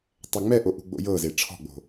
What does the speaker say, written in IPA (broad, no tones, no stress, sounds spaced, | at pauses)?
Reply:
tˤ ɛ ŋ͡m ɛ ʔ o ʔ ṳ ɡ͡b o̰ j ɤ z e ʈ͡ʂʰ ɔ̤ ɡ͡b o̤